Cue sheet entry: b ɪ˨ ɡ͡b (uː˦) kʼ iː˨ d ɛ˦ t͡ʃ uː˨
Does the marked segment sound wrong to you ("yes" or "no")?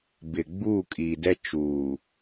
yes